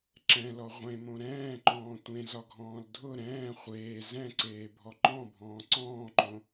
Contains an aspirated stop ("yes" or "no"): no